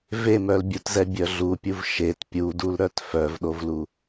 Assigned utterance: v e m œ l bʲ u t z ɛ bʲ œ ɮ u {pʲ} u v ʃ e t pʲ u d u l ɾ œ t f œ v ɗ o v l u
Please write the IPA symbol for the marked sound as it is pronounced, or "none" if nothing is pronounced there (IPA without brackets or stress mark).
pʲ